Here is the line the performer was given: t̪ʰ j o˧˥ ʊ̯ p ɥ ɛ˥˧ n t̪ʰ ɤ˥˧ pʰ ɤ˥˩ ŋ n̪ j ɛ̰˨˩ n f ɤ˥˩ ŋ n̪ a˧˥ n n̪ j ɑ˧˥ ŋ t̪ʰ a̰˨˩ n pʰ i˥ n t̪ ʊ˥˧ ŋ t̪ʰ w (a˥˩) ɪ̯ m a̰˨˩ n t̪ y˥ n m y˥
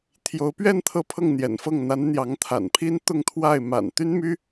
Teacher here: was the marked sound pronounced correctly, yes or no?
yes